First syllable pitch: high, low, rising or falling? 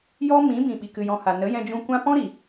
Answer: high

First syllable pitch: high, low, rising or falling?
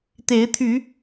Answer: rising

